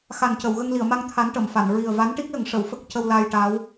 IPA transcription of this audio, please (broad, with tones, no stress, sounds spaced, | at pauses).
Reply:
x a˨˩ n c ə˨˩˨ w ɣ ə˧ ŋ l i˨˩˨ ə̯ m a˧ ŋ t̪ʰ a˧˥ n ʈ ə˨˩˨ m f a˨˩˨ n ɹ i˨˩ ə̯ v a˧˥ n ʈ i˦˥ k̚ l ə˨˩˦ ŋ ʂ ə˨˩˨ w f ə˦˥ k̚ c ə˧ w l aː˧ j ʈ aː˧˥ w